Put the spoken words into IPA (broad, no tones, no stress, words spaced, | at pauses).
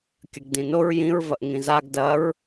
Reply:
kʲɐɡdĩnoɹ jĩɹ vɐʔŋĩzaɡ dɐɹ